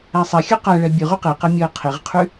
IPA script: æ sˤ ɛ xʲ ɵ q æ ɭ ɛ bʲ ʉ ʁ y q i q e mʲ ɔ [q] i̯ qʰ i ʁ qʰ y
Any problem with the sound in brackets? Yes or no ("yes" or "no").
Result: yes